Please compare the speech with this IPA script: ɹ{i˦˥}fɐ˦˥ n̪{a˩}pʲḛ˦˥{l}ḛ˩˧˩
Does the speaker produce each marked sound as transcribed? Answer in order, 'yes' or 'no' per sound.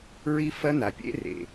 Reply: yes, yes, no

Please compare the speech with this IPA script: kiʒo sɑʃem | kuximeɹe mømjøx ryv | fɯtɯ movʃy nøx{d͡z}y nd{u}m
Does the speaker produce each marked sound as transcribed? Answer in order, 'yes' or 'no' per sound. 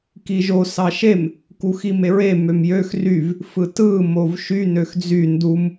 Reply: yes, yes

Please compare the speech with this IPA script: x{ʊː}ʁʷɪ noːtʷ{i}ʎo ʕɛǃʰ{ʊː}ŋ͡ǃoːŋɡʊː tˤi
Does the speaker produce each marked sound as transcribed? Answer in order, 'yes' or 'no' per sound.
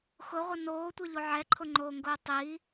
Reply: no, no, no

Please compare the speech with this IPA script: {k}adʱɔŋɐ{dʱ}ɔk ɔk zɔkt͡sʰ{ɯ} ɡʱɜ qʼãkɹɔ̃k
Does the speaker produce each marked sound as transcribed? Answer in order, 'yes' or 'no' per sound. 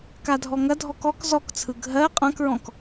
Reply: yes, yes, yes

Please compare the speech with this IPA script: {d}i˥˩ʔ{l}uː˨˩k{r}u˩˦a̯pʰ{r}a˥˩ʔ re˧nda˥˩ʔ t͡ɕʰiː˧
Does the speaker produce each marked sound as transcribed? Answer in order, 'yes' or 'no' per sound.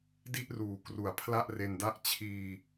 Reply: yes, no, yes, no

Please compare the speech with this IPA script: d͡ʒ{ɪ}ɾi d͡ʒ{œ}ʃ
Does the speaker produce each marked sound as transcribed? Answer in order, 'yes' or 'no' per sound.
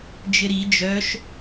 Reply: yes, yes

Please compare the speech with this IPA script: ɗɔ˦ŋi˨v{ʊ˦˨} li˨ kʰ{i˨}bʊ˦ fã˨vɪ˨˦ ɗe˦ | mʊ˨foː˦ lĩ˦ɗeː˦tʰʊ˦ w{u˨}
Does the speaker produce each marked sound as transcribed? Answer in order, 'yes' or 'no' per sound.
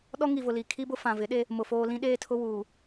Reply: no, no, no

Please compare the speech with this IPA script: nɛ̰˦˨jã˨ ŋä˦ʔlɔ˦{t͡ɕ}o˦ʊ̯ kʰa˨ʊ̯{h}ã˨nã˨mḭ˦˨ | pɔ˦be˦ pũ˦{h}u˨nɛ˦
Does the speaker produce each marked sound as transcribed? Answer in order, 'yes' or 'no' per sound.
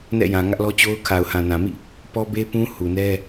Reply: yes, yes, yes

